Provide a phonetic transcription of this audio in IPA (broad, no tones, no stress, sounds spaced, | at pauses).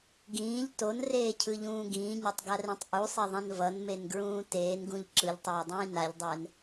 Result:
ɡ ĩː ʎ t o n r eː cʰ ɯ ʎ ũː ɡ ĩː ɲ ɛ tˤ ɡ a r ẽ tˤ ʔ u sˤ e ðˤ ɛ̃ n v ʌ n m e n ɡ ɹ ũː t eː n ɡ ũ ʎ ǁ ɯ ʎ tˤ ɛː dˤ ĩː n a ʎ dˤ ɛː n